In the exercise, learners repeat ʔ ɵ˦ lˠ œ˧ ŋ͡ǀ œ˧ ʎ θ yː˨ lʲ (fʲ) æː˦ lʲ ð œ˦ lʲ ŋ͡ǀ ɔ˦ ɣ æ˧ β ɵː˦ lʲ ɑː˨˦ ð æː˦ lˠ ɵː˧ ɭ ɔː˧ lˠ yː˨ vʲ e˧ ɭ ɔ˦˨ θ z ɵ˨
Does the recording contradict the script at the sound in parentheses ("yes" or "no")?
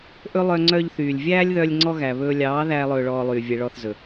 yes